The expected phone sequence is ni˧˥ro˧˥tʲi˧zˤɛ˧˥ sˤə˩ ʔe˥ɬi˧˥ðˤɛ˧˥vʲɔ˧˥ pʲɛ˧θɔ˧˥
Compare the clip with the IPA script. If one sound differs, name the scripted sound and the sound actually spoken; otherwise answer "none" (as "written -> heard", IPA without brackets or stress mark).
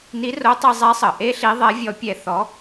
tʲ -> tˤ